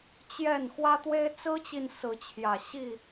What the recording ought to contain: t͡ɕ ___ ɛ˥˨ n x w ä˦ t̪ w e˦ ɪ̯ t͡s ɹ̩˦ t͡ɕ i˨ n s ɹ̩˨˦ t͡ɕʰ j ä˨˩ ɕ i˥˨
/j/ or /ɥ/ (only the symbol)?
j